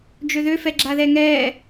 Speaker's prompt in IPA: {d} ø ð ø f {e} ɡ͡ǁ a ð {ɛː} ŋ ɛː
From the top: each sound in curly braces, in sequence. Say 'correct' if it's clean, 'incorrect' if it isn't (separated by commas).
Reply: incorrect, incorrect, incorrect